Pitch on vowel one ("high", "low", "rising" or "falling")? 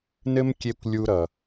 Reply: high